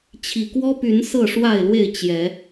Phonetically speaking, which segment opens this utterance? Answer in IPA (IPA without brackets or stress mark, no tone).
t͡ɕʰ